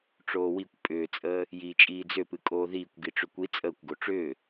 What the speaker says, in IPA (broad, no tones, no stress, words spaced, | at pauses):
ʈ͡ʂoːwikʷ pʼʏːt͡sʼəː | jiːt͡ʃʼiːd͡zʏpɨ kʼoːðiːkʷɡiʈ͡ʂʏ kʷi t͡sʼəːkʷɡo ʈ͡ʂʏː